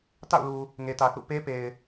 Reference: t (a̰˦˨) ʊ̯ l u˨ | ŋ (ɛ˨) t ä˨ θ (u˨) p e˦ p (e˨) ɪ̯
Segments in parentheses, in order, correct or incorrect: correct, incorrect: e˨, incorrect: ṵ˦˨, correct

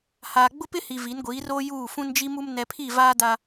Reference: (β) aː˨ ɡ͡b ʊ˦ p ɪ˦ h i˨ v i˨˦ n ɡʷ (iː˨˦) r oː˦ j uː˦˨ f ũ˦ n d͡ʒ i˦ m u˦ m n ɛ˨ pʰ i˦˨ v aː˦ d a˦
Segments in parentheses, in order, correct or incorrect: incorrect: h, correct

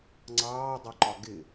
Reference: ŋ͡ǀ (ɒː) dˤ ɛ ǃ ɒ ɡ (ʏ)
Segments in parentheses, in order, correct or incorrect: incorrect: ɑː, incorrect: ɪ

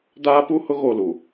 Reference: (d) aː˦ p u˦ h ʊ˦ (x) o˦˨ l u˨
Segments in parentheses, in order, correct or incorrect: correct, incorrect: ɣ

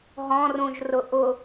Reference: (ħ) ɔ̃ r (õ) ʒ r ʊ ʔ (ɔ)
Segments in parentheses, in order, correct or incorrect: incorrect: ɦ, incorrect: ũ, incorrect: ʊ

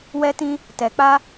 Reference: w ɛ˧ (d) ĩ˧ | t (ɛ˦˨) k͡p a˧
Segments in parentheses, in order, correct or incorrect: incorrect: t, incorrect: ɛ˨

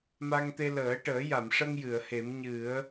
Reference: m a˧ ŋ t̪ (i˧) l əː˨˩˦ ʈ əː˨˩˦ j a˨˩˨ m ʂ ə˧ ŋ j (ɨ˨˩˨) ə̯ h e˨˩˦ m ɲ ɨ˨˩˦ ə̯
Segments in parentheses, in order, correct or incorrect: incorrect: e˧, correct

